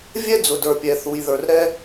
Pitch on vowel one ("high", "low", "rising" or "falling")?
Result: high